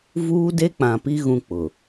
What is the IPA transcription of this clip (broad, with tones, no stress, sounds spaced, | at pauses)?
v uː˦ d e˦ k͡p ã˨ p i˦ ɣ ũ˦ k͡p ʊ˨